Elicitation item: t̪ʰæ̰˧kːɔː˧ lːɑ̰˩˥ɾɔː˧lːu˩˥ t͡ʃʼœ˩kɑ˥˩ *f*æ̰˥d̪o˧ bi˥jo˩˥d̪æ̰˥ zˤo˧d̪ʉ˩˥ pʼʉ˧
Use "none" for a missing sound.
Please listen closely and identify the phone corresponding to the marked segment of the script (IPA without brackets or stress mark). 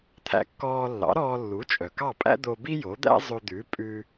pʼ